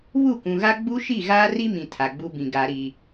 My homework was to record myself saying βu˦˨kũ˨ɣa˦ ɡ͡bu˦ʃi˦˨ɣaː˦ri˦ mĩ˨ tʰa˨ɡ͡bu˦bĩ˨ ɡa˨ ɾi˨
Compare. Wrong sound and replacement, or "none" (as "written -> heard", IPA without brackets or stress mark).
none